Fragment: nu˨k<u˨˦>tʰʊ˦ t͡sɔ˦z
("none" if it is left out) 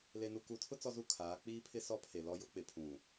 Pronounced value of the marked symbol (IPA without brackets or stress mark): u˨˦